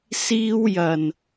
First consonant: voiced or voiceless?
voiceless